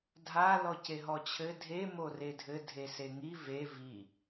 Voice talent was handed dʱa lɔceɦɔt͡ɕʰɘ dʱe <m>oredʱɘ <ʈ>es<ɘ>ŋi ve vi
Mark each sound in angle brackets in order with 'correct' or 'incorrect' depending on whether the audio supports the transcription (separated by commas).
correct, incorrect, incorrect